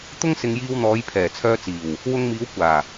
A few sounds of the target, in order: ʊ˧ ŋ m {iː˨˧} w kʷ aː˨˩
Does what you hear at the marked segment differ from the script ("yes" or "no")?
no